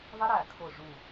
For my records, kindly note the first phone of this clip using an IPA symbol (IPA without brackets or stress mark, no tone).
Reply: ðˤ